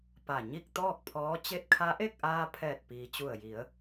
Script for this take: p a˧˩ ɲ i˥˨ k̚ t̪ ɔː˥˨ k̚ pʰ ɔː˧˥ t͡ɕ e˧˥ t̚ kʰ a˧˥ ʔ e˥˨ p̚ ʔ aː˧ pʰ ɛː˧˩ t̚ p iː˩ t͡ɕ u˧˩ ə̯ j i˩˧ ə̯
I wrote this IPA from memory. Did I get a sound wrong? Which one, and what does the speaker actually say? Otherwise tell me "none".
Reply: p̚ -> k̚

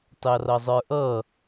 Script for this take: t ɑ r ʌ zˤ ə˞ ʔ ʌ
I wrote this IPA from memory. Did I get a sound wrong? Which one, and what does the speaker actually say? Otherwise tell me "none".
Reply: none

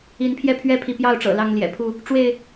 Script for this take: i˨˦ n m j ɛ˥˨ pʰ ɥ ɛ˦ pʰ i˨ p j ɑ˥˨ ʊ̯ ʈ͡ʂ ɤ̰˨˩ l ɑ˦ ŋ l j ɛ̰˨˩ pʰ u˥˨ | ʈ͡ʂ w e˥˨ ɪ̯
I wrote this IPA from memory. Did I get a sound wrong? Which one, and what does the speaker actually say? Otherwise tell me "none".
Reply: m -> pʰ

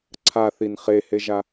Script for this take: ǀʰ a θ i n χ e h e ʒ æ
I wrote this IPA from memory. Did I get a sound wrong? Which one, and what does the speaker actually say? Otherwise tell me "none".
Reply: æ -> a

